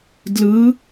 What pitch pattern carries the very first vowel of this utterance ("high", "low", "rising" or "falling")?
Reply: rising